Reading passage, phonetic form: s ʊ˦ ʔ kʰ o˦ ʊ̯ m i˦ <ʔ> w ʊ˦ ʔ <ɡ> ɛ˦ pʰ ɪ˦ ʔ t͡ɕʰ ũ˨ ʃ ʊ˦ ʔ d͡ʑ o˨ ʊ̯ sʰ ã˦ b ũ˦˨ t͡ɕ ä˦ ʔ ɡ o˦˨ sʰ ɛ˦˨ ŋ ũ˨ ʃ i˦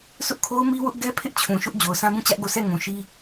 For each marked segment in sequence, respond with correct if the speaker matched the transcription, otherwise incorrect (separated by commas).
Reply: incorrect, correct